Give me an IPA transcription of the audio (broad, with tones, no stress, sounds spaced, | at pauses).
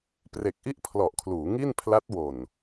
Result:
p r e˨˩ k̚ ʔ i˥˩ ʔ pʰ l ɔ˨˩ ʔ kʰ l uː˩˦ ŋ i˥˩ n pʰ l a˦˥ t̚ w o˨˩ n